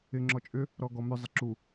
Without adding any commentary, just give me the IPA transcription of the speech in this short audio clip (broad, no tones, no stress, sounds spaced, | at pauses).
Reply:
ɪ ŋ͡ǁ ɔ t͡ʃʼ ʏ | ɾ ɔ ɡ ɔ m ʏ zˤ ɪ ǁ u